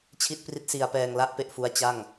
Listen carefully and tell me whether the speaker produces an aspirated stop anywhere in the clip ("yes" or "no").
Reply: yes